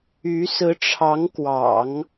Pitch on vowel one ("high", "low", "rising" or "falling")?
rising